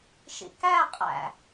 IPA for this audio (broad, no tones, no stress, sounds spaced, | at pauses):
ʃ ḭ k æ qʼ æ̰